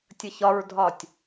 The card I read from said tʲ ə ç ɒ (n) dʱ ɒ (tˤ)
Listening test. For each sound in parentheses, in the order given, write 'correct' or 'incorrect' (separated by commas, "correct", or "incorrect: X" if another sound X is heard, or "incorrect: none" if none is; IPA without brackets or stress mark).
incorrect: ɹ, incorrect: tʲ